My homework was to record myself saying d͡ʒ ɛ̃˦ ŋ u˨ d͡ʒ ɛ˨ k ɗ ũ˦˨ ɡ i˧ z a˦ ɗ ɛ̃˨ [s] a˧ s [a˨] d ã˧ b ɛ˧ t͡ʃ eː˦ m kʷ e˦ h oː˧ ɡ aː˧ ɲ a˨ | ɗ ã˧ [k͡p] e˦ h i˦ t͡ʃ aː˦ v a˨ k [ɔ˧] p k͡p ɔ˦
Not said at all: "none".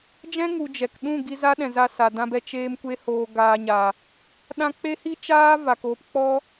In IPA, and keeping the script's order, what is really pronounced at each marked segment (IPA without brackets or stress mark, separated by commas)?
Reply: z, a˨, k͡p, o˧